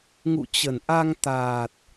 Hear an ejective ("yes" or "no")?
no